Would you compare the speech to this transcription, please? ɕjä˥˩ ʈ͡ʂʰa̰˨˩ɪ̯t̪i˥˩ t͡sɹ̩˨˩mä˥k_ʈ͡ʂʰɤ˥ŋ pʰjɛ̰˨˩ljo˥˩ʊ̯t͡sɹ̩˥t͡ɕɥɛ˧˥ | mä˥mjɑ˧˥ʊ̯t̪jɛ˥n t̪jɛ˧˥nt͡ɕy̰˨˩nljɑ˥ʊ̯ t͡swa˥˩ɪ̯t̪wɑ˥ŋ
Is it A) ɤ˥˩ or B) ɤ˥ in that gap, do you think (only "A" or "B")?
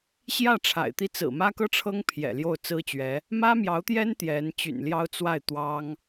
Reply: B